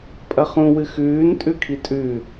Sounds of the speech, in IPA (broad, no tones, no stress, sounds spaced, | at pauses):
pʼ ɐ χ ũ w ɨ x ʉː n tʼ ʉ kʰ i tʼ ʉ